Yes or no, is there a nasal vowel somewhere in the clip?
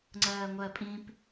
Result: yes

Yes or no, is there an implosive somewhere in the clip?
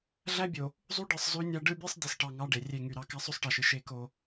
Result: no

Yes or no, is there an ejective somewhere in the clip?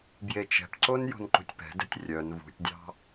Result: no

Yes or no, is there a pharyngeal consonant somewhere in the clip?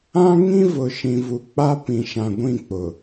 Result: no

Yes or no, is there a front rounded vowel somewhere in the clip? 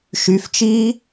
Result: yes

